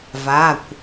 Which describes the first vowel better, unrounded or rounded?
unrounded